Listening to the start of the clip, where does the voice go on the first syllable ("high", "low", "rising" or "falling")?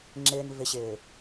low